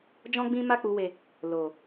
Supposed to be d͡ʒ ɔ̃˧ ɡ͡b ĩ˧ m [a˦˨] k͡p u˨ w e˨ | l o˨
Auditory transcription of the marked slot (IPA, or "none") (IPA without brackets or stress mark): a˧